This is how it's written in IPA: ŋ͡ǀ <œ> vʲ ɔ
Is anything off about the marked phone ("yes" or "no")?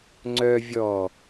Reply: no